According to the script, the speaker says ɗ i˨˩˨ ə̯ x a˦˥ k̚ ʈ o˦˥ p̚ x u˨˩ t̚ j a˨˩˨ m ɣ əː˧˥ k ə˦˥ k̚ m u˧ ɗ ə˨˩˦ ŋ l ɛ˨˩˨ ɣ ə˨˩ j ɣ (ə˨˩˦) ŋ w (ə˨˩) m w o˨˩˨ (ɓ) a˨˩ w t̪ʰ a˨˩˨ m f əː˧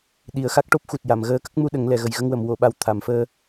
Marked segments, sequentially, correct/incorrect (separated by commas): incorrect, incorrect, correct